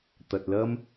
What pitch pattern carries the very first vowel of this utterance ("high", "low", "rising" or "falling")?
low